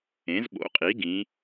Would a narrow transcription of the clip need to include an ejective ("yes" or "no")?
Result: yes